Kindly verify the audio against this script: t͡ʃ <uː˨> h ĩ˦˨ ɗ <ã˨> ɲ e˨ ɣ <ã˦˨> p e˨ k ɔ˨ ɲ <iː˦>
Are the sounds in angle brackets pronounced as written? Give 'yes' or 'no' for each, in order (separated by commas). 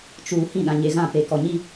yes, yes, yes, no